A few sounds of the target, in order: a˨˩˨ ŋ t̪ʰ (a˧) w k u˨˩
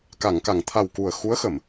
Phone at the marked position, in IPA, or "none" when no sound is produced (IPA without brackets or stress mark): a˨˩